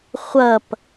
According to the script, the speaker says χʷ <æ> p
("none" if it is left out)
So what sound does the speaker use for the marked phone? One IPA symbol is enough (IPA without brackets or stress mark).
ɐ